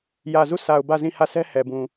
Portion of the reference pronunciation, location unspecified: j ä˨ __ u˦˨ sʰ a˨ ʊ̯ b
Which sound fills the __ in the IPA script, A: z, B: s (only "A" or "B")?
A